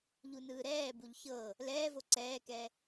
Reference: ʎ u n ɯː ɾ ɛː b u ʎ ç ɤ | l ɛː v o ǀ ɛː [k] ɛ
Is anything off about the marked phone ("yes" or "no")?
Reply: no